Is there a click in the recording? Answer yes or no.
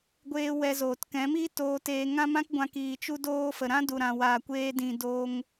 no